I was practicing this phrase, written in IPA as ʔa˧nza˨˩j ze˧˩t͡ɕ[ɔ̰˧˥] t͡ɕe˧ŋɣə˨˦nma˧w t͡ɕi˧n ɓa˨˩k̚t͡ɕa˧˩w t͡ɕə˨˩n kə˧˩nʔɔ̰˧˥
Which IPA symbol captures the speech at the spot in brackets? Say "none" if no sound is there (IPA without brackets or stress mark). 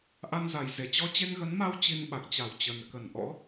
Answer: ɔ˧